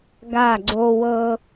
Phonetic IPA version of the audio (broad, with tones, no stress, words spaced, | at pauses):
ɡa˧˩ɡ͡ǀo˧wɤ˧